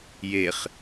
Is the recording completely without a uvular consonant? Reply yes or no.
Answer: no